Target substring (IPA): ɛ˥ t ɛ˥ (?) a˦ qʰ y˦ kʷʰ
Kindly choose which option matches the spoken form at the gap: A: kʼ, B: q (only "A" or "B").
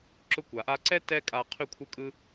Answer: A